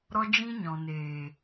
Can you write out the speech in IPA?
ɾɔ˦d͡ʒĩ˦ ɲɔ̃˨neː˨

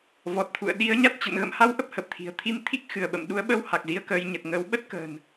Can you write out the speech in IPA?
vɔ˨˩t̚t̪ʰṵ˧˨ə̯ ɗi˨˦ə̯ɲa˦˥t̚t͡ɕə̰˧˨n ɣə̰˧˨mha˧w ʔə˦˥p̚hə˨˩p̚t̪ʰi̤˨˩ə̯ t̪ʰi˧m t̪ʰi˦˥k̚ xɨ˧˩ə̯ɓə̰˧˨m ɗu˨˦ə̯ɓə˧w ha˨˩k̚zi˧ə̯kəː˧j ɲə˨˩t̚ŋəː˨˦w ɓə˦˥t̚kə̤ː˨˩n

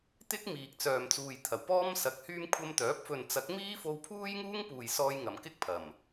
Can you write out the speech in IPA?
t̪ɪ˥k̚ miː˨k̚t͡sœː˨mt͡suː˨jt̪ʰɐ˨˩w pɔː˥msɐ˨k̚hyː˥m kʷʰɐ˧mt̪œː˨˥p̚fɵ˨nt͡sɐ˨˥k̚ miː˥fo˧wpʰuː˥jŋuː˥ŋ puː˨jsɔː˧jŋɐ˨˩mkɪ˥k̚ pʰɐ˨˩m

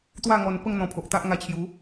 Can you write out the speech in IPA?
t̪wa˥˧ŋɔ˧n pə˥˧ŋn̪ɔ̃˧pʰo˨ʔt̪a˦ʔ ŋa˧t͡ɕʰju˨˦

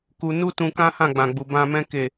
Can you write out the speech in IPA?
ku˧ nu˦tũ˧kã˦ hã˦˨ɡ͡bã˨ɡ͡bu˨ bã˧mɛ̃˦ ke˦˨

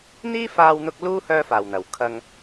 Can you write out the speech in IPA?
n̪iː˥faː˧wn̪ʊ˧k̚ luː˥ hœː˧faː˨˩wn̪ɐ˨˩w kʰɐ˧ŋ

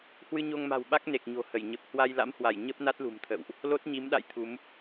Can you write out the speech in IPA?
hwɨ˧ɲo˧ŋma̤˨˩wɓa˦˥k̚ ne˨˩k̚ ɲo̤˨˩hə˧˩j ɲə˨˩p̚hwa˧j la̰˧˥mhwa˧˩j ɲə˦˥p̚na˦˥t̚lṳ˨˩mt̪ʰə̰˧˨wʔ | lo˦˥t̚ɲi˨˦mɗa̰˧˨j t̪ʰu˨˦m

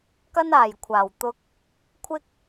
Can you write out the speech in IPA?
kɐ˧naː˨˩jkʷʰaː˨˩wt̪ʊ˨k̚ | kʷʰɪ˧k̚

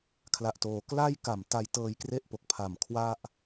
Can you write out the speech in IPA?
kʰla˨˩ʔtoː˩˦ kla˥˩jka˨˩m ta˧jtɤː˧jkre˥˩ʔpo˨˩k̚ pʰa˨˩m kʰwa˥˩ʔ

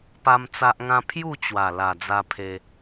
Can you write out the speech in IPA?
pa˦mt͡sa˦ʔŋã˦ pʰju˥˧t͡ɕwa˨˩ la˨˩d͡za˧pʰe˧

